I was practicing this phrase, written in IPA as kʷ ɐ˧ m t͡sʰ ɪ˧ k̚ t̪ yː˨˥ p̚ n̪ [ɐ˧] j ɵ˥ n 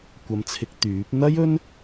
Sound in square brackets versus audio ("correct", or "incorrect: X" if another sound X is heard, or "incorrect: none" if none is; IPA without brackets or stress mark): incorrect: ɐ˥